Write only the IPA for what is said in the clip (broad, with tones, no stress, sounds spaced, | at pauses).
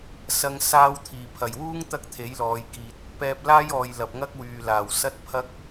s ɐ˧ ŋ s aː˧ w t̪ʰ iː˨˩ pʰ ɐ˨˩ j w uː˥ ŋ t̪ ɐ˥ k̚ t̪ʰ e˨˥ j l ɔː˨˧ j k iː˧ t̚ | p ɛː˧ p̚ l aː˥ j ɔː˨ j l ɐ˨ p̚ ŋ ɐ˥ k̚ w yː˨ l aː˨˩ w s ɐ˥ t̚ pʰ ɐ˥ k̚